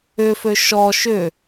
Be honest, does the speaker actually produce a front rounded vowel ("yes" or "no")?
yes